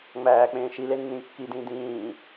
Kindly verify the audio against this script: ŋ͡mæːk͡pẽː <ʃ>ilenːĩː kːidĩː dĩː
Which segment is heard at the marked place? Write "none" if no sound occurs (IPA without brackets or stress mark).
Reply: ʃ